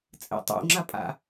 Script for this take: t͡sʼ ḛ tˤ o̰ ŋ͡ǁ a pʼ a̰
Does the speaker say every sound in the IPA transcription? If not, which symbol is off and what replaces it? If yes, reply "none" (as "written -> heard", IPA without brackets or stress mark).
none